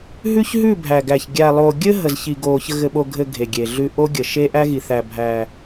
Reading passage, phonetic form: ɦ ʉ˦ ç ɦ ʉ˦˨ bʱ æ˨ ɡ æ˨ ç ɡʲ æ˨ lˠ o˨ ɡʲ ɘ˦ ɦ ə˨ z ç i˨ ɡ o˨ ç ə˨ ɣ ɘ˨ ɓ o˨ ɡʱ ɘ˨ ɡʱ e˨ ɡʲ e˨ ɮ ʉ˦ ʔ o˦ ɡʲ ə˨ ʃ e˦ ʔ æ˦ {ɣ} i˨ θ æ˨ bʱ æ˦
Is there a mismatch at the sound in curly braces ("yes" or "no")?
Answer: no